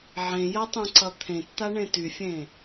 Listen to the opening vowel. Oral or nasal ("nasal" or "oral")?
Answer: nasal